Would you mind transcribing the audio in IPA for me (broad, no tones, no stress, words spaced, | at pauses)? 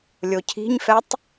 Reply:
lʲocʰi̤ɲfɛtˤ